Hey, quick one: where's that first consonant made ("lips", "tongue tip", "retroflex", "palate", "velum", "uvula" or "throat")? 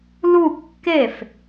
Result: tongue tip